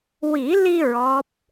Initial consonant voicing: voiced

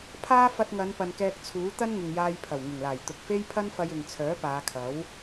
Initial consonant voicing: voiceless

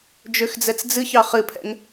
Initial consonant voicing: voiced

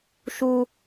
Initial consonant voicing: voiceless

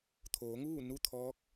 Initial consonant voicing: voiceless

